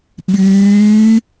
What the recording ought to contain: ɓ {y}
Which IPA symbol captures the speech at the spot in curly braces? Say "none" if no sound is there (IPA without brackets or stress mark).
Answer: yː